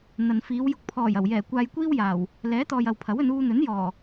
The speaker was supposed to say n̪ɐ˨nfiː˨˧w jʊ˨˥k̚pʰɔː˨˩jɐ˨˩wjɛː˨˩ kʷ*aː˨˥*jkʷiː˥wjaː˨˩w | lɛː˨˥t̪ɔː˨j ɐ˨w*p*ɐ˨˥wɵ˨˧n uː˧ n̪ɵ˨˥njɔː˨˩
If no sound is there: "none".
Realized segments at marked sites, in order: aː˧, pʰ

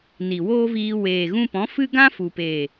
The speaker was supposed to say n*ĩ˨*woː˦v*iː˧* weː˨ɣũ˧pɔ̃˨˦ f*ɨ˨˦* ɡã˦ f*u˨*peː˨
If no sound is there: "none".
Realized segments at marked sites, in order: i˨, iː˧, ɨ˦, u˨

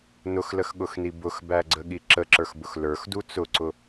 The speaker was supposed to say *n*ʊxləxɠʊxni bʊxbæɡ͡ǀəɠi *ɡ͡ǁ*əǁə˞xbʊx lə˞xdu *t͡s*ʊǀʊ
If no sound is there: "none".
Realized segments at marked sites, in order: n, ǁ, t͡s

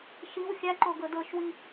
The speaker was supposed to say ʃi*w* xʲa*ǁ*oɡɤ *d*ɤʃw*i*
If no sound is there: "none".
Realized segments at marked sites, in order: w, ǃ, d, i

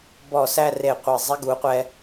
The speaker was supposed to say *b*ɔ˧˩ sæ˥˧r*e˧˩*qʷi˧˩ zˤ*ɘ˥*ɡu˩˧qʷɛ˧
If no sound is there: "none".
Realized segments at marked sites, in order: b, e˧˩, ɛ˥

